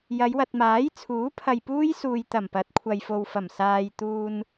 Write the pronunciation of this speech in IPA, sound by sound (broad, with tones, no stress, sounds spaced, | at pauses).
j ɐ˨˧ j w ɐ˨ t̚ m aː˨˥ j t͡sʰ uː˨˥ pʰ ɐ˨ j p uː˥ j s uː˨ j t̪ ɐ˨˩ m p ɐ˨˥ t̚ kʷʰ ɐ˨ j f o˨ w f ɐ˨˩ m s aː˨ j t̪ uː˧ n